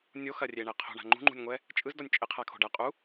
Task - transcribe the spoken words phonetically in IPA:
nʲ o x ɐ rʲ e ɳ ɛ qʰ o̤ ɳ a̤ ŋ͡ǃ ṳ ŋ͡ǃ ṳ nʲ ŋʷ ɛ | t͡ʃʼ ɯ z d ɔ nʲ t͡ʃʼ ɪ qʰ a kʰ o̤ ɖ ɐ qʼ u

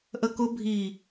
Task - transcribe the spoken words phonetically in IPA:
ʔ ə k ʊ bʱ i

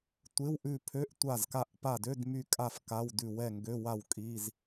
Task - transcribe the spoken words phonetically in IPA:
tʷ ɪ˧˥˧ w ʔ ʉ˦˨ pʰ ø˧˥˧ ʔ tʷ a˦˨ z k a˦˨ ʔ p a˦˨ d ø˧˥˧ d m y˦˨ kʼ a˦˨ f k a˧˥˧ w d ʉ˦˨ w ɛ˦˨ ŋ ɡ ø˧˥˧ w a˦˨ w kʼ i˧˥˧ z

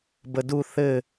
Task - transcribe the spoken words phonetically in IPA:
b ə d u θ ɘ

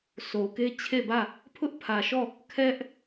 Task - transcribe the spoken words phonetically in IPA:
s o˨ k e˦ t͡ɕʰ e˦˨ b ä˦˨ | pʰ ʊ˦ ʔ pʰ ä˨ ʃ ɔ˦˨ | kʰ ɛ˦ ʔ

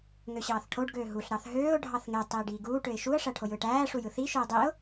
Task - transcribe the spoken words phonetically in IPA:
ŋ ø ɕ ɑː θ ʈʰ o ɖ ɡ øː ɦ u ɬ ɾ ɑ θ ɦ øː ʊ̯ ɖʱ ɑ θ ŋ e tˤ iː ɖ iː ɡ uː ʈ ø ɪ̯ ʃ u ə̯ ʂ æ ʈʰ o j ɯː ʈ æː ʂ u j ɯ θ i ʃ ɯ ɪ̯ dˤ i ʊ̯

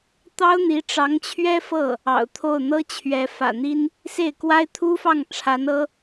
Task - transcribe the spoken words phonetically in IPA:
t̪ ɑ˥ ʊ̯ n̪ i˧˥ ʈ͡ʂ ɑ˧˥ ŋ t͡ɕʰ ɥ ɛ˥ f ɤ˥˩ | ɑ̰˨˩ ʊ̯ t̪ʰ o˥˩ ʊ̯ n̪ ɤ˥ t͡ɕʰ ɥ ɛ˧˥ f ä̰˨˩ n̪ i˥ n | s e˥˩ ɪ̯ k w a˥ ɪ̯ t̪ʰ u˥ f ɑ˥˩ ŋ ʈ͡ʂʰ a˧˥ n ɤ˥

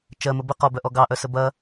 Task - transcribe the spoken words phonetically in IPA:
t͡ʃ ɜ m ə b ə q ɔ b œ ʔ ɔ ɡ ɑ ʔ œ s ə b ɐ

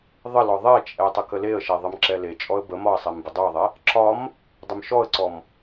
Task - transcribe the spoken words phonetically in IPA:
ðˤ ə l ɔ ðˤ ɛ t͡ʃʼ ɛ tˤ ə k ə l e ə̯ ʃ ɛ ðˤ ə m ǁ ɛ l e t͡ʃʼ ɔ ə̯ b ə m ɒ ə̯ sˤ ɛ m b ə dˤ o ə̯ ðˤ ɛ | ǁ ɒ m | dˤ ə m ʃ ɔ ə̯ ǀ ɔ m

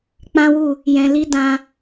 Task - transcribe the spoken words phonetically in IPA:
k͡p ã˦ w u˦˨ | j ɛ̃˨ l i˧ d ã˧

